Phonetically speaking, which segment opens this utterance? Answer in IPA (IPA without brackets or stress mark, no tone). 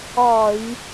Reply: ɒ